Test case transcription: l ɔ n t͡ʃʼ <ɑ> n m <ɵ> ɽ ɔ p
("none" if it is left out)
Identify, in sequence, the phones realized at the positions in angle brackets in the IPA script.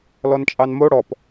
ɑ, o

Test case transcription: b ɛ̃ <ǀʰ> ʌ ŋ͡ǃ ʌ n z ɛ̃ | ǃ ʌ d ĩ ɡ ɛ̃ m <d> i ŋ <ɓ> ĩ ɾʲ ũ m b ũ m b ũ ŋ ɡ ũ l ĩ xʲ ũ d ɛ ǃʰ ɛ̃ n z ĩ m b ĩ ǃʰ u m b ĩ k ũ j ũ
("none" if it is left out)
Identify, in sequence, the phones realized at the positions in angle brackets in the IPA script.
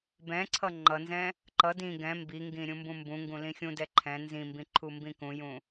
ǀʰ, b, ɡ

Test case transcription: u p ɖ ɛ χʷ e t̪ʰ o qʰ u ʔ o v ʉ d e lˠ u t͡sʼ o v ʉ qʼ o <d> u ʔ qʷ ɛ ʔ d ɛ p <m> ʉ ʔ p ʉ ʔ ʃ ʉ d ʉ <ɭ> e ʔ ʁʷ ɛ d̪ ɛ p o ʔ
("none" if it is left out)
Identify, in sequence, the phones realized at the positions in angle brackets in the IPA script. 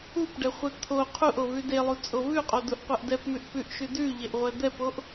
d, m, ʎ

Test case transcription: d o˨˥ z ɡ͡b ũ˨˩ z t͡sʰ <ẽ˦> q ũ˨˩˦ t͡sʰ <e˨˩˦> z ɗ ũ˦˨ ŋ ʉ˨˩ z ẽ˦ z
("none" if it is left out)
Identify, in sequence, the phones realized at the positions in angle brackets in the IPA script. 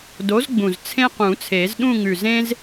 ẽ˦, e˨˩˦

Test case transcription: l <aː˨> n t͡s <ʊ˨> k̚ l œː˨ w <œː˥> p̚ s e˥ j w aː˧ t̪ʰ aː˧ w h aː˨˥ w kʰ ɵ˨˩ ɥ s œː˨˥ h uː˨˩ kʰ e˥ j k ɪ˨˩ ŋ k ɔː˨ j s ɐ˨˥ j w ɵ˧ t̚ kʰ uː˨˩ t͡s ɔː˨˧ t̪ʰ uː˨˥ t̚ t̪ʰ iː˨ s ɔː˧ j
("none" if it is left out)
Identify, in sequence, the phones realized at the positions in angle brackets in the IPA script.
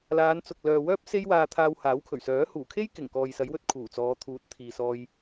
aː˨˧, ʊ˨, œː˥

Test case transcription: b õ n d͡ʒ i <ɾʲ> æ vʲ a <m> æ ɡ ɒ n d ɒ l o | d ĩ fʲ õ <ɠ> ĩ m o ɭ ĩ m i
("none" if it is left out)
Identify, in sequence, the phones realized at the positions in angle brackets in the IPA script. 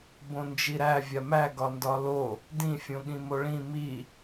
ɾ, m, ɠ

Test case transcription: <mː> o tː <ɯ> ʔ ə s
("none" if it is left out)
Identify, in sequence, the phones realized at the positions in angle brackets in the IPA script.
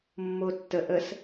mː, ə

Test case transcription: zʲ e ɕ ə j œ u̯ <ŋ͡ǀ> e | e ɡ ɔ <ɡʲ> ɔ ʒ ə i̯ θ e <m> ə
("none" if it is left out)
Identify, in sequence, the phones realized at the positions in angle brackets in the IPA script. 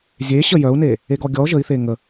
n, ɡʲ, ŋ

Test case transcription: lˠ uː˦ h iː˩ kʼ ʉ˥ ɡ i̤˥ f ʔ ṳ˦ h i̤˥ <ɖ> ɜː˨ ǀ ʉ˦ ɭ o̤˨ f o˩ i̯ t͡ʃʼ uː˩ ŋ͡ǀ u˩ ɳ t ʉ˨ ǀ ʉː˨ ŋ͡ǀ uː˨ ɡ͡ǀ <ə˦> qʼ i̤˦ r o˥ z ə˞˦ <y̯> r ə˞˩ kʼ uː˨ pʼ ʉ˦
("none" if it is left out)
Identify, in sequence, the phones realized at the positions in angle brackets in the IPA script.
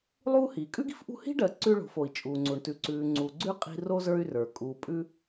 ɖ, ʉ˦, y̯

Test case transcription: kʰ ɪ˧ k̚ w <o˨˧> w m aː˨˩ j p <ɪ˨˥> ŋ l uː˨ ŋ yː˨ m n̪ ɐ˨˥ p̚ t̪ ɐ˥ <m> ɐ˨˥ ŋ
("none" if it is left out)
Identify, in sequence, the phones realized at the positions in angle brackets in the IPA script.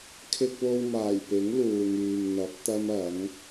o˧, ɪ˨˥, m

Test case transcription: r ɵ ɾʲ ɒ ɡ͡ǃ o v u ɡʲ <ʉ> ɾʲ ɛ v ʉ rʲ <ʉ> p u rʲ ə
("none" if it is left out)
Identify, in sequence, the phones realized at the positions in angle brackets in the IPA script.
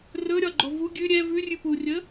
ʉ, ʉ

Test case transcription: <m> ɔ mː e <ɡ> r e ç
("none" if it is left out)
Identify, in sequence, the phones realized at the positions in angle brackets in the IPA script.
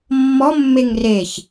mː, ŋ

